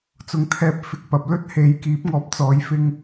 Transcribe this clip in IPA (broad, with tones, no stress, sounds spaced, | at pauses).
t͡s ʊ˨ ŋ t̪ʰ ɛː˧ p̚ f ɪ˧ k̚ p ɐ˨ p̚ l ɵ˥ t̚ h e˨˧ j k iː˨˥ p̚ ŋ ɔː˧ p̚ t͡s ɔː˨˧ j f ɪ˧ ŋ